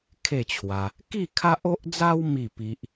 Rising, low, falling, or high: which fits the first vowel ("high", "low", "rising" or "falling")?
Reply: falling